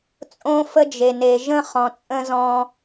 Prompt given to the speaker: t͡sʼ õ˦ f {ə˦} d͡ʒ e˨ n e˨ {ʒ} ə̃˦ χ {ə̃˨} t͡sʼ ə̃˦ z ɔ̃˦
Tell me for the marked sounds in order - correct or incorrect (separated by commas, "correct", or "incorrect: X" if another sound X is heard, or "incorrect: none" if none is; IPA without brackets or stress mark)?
correct, correct, incorrect: ɔ̃˨